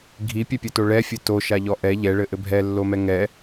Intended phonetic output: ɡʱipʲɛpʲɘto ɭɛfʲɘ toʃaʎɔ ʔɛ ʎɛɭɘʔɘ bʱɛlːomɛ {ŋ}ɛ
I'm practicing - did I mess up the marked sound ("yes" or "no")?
no